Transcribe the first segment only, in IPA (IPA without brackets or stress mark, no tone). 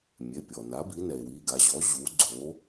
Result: mʲ